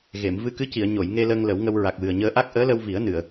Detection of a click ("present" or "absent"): absent